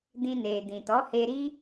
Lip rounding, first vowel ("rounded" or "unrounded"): unrounded